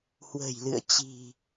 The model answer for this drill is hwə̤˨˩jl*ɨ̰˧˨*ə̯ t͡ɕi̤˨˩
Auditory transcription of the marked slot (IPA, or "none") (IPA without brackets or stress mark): ɨ̰˧˨